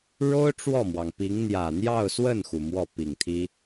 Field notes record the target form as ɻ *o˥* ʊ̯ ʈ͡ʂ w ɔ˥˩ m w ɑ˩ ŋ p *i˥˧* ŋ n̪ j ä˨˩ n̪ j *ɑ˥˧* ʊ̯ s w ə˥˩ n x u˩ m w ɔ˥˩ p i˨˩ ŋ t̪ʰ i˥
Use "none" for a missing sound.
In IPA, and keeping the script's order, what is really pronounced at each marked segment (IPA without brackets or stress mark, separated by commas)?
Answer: o˥, i˧˥, ɑ˥˧